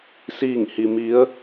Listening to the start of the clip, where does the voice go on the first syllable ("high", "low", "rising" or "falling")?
falling